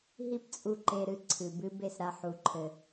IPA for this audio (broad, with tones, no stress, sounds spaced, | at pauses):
ɦ i˦ p t͡sʼ u˧ ǃ e˧ ɾ ɨ˧ ǀʰ ɨ˨ b ɨ˦ b e˦˨ s ɾ a˧ ħ u˧ ǃʰ ɘ˧